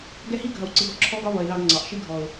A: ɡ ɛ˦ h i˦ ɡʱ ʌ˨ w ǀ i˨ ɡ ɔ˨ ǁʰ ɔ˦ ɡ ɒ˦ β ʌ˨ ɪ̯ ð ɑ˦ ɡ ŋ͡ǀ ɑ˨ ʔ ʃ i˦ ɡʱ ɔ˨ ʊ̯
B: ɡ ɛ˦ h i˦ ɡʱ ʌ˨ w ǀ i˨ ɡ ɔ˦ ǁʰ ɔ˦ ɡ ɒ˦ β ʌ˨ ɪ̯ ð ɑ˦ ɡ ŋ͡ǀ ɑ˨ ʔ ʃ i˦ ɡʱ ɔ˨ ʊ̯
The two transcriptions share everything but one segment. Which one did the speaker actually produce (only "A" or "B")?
B